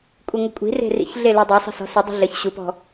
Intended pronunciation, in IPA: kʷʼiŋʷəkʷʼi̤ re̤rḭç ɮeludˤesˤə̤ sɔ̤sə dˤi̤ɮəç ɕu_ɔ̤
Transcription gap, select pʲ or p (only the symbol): p